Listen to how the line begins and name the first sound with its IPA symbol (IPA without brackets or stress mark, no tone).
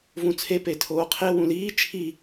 v